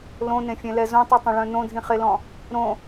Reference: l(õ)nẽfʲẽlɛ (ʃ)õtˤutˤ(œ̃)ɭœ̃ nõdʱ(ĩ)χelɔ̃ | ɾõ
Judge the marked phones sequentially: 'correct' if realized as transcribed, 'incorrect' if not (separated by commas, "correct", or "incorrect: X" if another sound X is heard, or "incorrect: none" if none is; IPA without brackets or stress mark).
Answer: correct, incorrect: z, correct, correct